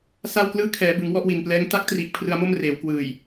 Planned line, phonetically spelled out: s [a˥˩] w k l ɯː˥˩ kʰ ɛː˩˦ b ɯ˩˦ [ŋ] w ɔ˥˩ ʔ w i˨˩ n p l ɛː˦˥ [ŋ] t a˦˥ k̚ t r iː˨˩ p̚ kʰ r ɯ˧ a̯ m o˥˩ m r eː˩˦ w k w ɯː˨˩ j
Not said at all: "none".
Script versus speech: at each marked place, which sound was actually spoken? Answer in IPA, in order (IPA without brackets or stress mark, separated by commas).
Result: a˥˩, ŋ, ŋ